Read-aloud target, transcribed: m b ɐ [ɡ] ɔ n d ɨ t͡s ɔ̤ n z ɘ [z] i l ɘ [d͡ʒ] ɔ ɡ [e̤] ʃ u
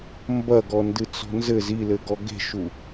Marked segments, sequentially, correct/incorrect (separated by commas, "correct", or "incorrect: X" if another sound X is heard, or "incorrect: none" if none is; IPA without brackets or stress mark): correct, correct, incorrect: ɡ, correct